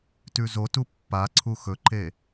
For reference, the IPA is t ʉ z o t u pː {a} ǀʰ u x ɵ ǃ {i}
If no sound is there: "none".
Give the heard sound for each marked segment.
a, e

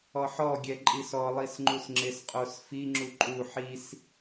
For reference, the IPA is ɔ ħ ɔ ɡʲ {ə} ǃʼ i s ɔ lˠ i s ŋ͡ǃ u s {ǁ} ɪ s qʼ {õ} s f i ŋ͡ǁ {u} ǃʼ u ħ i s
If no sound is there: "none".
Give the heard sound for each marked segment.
ɛ, ŋ͡ǁ, o, u

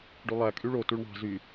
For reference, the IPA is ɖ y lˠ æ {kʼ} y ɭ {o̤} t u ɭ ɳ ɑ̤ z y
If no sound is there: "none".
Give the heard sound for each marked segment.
kʼ, o

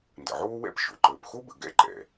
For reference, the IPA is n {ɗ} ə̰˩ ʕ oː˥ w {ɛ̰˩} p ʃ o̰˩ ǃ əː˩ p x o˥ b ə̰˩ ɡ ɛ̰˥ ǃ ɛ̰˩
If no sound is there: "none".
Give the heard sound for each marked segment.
d, ɛ̰˥

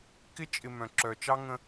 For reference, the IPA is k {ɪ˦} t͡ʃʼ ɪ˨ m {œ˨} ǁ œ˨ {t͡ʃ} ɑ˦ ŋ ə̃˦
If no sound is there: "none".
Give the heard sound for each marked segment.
ɪ˦, œ̃˨, t͡ʃ

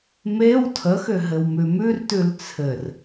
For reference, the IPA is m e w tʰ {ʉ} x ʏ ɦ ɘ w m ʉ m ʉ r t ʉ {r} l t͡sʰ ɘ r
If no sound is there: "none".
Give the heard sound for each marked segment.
ə, none

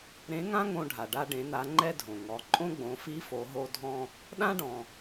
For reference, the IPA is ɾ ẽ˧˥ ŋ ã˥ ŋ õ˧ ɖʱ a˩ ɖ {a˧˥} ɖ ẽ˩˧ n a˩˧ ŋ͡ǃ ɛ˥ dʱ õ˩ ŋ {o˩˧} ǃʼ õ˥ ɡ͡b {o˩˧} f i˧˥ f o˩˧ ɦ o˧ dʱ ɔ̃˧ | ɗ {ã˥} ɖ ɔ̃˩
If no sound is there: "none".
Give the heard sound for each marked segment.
a˧, ɔ˩˧, õ˩˧, ã˥

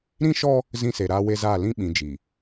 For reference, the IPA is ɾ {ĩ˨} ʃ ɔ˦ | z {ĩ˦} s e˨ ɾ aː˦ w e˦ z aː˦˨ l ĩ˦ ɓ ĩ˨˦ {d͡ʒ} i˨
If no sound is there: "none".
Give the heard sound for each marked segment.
ĩ˦, ĩ˦, d͡ʒ

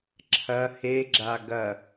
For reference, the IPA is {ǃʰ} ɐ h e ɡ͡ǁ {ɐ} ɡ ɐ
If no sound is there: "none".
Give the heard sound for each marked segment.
ǁʰ, a

